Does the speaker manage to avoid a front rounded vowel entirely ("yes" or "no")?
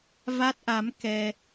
yes